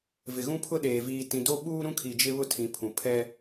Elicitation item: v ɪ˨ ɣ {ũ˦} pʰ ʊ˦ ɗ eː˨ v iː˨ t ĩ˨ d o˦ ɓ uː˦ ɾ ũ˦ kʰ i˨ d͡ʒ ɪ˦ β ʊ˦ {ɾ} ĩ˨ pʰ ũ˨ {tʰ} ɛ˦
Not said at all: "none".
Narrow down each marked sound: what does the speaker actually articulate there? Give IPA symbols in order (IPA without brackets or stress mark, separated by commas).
ũ˦, tʰ, pʰ